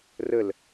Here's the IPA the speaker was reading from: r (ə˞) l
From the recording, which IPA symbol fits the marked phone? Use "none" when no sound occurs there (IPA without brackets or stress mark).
ə